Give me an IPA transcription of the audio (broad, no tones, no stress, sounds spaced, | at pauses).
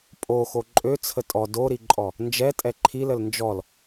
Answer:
pʼ o x o ǃʼ ø t͡sʰ ə tʼ ɔ d o ɾ i ǃʼ ɔ | n d͡ʒ ɛ tʼ ɛ ǃʰ i l ə l n d͡ʒ ɔ l